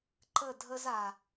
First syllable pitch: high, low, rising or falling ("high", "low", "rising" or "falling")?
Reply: falling